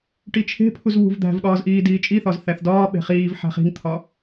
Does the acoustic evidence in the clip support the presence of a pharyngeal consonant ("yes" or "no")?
yes